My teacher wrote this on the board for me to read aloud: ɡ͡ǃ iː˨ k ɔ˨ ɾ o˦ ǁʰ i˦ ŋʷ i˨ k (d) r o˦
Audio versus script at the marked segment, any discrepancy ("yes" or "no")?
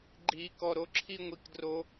no